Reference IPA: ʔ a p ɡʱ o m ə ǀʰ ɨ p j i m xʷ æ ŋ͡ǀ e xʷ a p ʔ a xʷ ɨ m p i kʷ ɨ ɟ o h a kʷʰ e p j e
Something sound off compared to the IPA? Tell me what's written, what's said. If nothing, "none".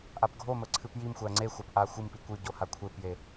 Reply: none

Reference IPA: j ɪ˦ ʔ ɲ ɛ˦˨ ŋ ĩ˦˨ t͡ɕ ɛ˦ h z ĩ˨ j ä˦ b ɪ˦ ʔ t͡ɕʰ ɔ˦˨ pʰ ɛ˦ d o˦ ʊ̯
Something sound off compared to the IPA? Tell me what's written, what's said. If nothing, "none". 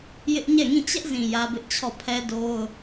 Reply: h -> ʔ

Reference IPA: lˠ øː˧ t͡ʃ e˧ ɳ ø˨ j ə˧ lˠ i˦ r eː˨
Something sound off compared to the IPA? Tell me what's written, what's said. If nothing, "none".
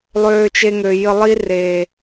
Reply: ɳ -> ŋ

